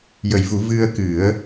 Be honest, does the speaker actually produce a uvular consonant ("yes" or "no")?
no